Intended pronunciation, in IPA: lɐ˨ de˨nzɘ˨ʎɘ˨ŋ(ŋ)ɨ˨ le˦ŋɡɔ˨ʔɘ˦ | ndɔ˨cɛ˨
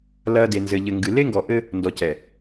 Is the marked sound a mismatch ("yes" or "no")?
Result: yes